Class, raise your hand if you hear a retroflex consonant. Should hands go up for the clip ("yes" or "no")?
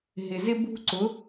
no